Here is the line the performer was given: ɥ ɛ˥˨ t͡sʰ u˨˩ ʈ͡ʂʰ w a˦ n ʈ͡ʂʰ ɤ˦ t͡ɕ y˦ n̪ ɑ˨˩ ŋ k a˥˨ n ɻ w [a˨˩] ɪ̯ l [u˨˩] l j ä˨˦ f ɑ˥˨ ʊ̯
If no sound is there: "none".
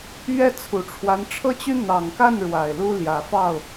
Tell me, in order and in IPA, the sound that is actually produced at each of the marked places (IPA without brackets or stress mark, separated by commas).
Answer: a˨˩, u˦